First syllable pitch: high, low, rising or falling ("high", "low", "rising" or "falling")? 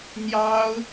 high